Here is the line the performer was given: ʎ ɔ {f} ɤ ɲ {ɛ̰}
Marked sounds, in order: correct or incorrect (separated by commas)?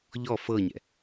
correct, correct